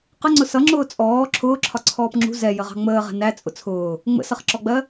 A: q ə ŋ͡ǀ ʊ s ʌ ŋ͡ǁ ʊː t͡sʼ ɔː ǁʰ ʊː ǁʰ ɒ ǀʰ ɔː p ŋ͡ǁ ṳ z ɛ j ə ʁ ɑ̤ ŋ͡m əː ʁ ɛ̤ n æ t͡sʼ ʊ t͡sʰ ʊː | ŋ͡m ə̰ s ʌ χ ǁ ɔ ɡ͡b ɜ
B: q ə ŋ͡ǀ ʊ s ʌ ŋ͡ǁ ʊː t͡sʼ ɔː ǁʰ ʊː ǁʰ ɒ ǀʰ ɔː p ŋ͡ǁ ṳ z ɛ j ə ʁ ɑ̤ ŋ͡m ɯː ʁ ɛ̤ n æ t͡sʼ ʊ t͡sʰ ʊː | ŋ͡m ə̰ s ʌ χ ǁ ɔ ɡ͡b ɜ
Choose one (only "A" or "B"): A